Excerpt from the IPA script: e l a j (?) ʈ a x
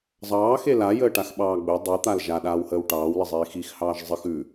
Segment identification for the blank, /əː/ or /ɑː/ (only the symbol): əː